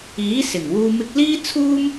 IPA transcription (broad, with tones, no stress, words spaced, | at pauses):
iː˨˥ sɪ˨˩ŋwuː˧ mɪ˧k̚liː˥ t͡sʰuː˥m